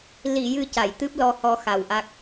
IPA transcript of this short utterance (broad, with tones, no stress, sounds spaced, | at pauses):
l i˨˩˨ j ɨ˨˩ c a˨˩˨ j t̪ ɨ˦˥ p̚ l ɔ˧ h ɔ˧ x a˨˩ w ʔ a˦˥ k̚